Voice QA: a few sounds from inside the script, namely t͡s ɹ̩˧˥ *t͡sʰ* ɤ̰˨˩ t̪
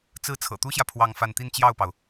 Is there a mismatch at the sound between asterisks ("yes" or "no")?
no